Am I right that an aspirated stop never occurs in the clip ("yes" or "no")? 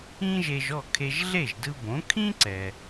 no